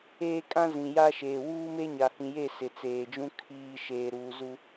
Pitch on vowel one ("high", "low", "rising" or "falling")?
high